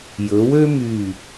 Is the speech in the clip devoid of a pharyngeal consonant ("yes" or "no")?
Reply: yes